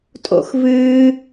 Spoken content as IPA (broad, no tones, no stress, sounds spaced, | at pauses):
tʼ o̰ x v ɨː